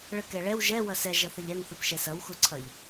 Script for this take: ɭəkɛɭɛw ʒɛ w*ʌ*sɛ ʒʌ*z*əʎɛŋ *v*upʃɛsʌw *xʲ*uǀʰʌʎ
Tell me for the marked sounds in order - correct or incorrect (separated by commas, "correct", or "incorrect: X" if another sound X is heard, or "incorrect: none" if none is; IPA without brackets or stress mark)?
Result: correct, incorrect: θ, incorrect: θ, incorrect: x